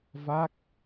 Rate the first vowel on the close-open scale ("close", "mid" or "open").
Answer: open